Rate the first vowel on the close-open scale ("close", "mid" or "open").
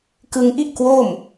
close